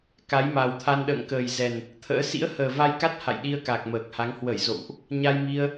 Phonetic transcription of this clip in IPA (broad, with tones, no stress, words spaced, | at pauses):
ka˨˦jma˨˩wt̪ʰa˧n ɗə̰ː˧˨ŋkəː˨˩jzɛ˨˩n | t̪ʰə̰ː˧˥ sḭ˧˥ə̯həː˨˩va˧jka˦˥t̚ ha̰˧˨jɗi˧ə̯ka˨˩k̚ məː˨˩k̚ha˨˦ŋ hwə˧˩jzo̰˧˨wʔ | ɲa˧jmi˧ə̯